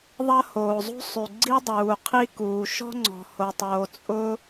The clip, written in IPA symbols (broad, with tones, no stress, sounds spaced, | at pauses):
ðˤ ɐ˥ h oː˩ zˤ ṳ˥ sˤ y˩ ɡ͡ǀ i˥ dˤ uː˩ qʰ i˥ k uː˩ ʃ ɔ̤˥ ŋ͡ǀ ɔ̤˩ h o˩ tˤ oː˩ t͡sʼ ʊ˥